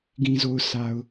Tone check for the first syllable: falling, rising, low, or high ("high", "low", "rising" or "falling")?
low